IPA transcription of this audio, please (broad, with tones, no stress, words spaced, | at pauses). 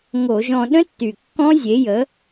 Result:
ŋo˧˩˧ʒɔ̃˧ ɗə̃˦˥tːy˨˩ kːɔ̃˦˥zʲe˨˥jə˨˥